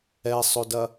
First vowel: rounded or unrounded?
unrounded